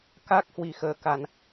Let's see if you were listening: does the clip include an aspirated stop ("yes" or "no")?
no